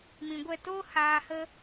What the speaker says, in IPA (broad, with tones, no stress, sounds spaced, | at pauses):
m ĩ˨ ɡʷ ɛ˦˨ t oː˦ h aː˧ h ə˦